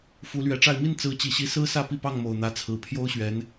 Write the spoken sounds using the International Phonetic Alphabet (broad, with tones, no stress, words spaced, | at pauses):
fu˧˥lɥɛ˧˥ʈ͡ʂa˥˧ɪ̯ mi˥˩nt͡sɹ̩˧˥t͡ɕi˨˩ɕi˧˥ sɹ̩˥sä˥˧ pi˥˧pɑ˥˩ŋ mo˨˩ʊ̯n̪ä˧˥t͡sʰɹ̩˨˩ pʰjo˥ʊ̯ɕɥɛ˧˥n